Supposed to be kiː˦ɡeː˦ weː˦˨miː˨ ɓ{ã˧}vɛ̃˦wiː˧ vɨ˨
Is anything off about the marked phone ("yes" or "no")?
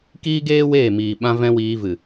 yes